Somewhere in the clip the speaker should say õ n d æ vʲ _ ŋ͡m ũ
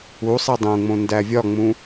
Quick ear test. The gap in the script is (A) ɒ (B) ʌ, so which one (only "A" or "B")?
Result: A